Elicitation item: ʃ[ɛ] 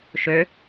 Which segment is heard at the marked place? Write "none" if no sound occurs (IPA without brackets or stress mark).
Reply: ø